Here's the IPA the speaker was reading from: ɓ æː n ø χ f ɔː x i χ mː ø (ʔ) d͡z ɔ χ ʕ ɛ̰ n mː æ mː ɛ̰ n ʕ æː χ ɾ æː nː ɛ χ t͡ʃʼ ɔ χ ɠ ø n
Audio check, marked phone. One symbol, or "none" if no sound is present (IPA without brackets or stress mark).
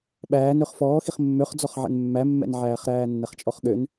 χ